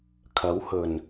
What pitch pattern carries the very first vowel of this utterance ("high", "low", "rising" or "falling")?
rising